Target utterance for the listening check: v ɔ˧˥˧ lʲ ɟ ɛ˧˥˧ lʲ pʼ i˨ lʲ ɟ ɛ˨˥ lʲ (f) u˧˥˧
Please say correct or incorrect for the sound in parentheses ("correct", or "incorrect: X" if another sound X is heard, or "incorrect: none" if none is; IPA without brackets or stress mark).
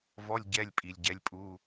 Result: incorrect: pʼ